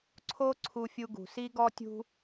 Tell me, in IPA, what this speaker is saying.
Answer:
ǀʰ o˥ ǀʰ u˦ fʲ u˦ ɡ ṳ˨ s i˥ ɡ ɔ˥ tʲ ṳ˥

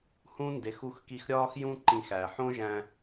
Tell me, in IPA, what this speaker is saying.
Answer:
h ũ˦ n d e˨˦ x u˧ x k i˧ x ɾʲ ɒː˦ x j ũ˦ ǃ ĩ˧ x æ˨ ħ õ˦ ʒ æ̃˧

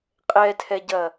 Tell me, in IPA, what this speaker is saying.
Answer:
qʼ ɛ tʰ ɛ ɟ ɐ

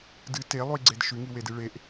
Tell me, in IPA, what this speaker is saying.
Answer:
d ɨ t e lˠ u i̯ ɡ͡ǀ e d ʃ ʉ ŋ i w e d ɨ ɭ e ʔ

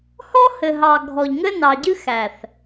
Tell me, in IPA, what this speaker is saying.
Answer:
h ɔ˦ h ɘ˨ ɦ ɑ˨ ɡʱ ɔ˨ ʎ ŋ ɘ˦ n ɑ˨ ɟ ɨ˦ x æ˨ θ

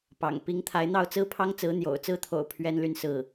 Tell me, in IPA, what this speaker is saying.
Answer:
p ɑ̰˨˩ ŋ p i˧˥ ŋ t̪ʰ a˧˥ ɪ̯ n̪ ɑ˥˩ ʊ̯ t͡s ɹ̩˥ pʰ ɑ˥ ŋ t͡s ɹ̩˧˥ n̪ j o̰˨˩ ʊ̯ t͡s ɹ̩˥˩ t̪ʰ o̰˨˩ ʊ̯ pʰ ɥ ɛ˥ n l y˥˧ n s ɹ̩˥˩

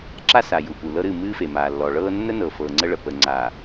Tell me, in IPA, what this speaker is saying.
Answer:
ǁ a˦ s a˨ j u˨ p u˨ l ɤ˦ ɾ ɨ˦˨ m ɨː˦ f e˨ m aː˨ lː ɔ˨ ɭ ɤː˦ nː ə˦ n ɤ˨ f ɤː˨ ŋ͡ǀ ə˦ ɭ ə˨ p ə˨ ŋ͡ǀ a˨

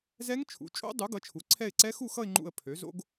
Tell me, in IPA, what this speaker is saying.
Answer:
z ɛ˦˥ ŋ t͡ʃʰ ṵ˩˥ t͡ʃʼ o̰˦˥ dˤ u˩˥ ɡ ʌ˩˥ t͡ʃʰ u˩˥ ǀʰ ɛ˥˧ ɪ̯ ǀ ɛ˦˥ x u˥˧ x ʌ˥˧ ɪ̯ ŋ͡ǃ ṵ˥˧ ə̯ pʰ ø˩˥ z o̰˦˥ ɡ

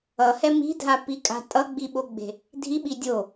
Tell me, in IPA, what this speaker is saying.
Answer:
ʌ h ɛ m i̤ dʱ a p i kʼ a̤ tʼ ʌ ɡ͡b i ɓ o ɡ͡b e̤ | dʱ i ɓ i dʲ o

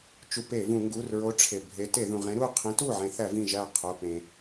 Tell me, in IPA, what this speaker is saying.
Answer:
t͡ʃ u˧˩˧ p e˧˩˧ v ũ˧˩˧ ŋ ɡ u˩˧˩ r ɹ o˨˥ ʈ͡ʂʰ e˩ bʱ e˨˥ t e˧˩˧ ð ũ˩ ʁ ẽ˨˥ ɾ u˥˧ qʰ ĩ˨˥ t u˥˩ ʕ ẽ˧˩˧ θ æ˧˩˧ v ĩ˥˩ ʒ æ˥˩ qʰ o˩˧˩ p ẽ˩

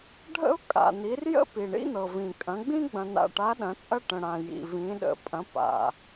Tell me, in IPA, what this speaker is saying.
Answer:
ɖʱ ə̰˥ ʊ̯ kʼ a̰˨ n̪ i˨˥ r j ə̰˥ p i˨ ɳ ḭ˥ n̪ ɤ˨ v ĩ˨ kʼ ɐ̃˨˥ ɡ͡b ĩ˥ ɡ͡b ɐ̃˨ n̪ a̰˨ ʈ a˨˥ ɗ ɐ̃˨˥ t͡sʼ ɐ˥ ʈ ə̃˨ ɽ ã˨ j ḭ˨ v ĩ˨˥ ɗ ə̰˨ pʼ ɐ̃˨˥ p a̰˨

